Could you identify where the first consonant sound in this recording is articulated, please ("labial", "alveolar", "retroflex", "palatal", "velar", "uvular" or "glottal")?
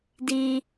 alveolar